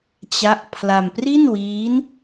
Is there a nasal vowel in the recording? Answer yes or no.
no